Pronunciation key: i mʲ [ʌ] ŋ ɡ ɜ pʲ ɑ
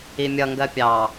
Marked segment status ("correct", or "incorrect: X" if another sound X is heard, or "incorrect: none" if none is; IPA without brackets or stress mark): correct